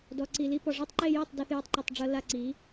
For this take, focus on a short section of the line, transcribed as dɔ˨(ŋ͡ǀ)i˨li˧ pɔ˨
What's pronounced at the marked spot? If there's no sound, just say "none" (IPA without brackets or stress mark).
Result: ǀ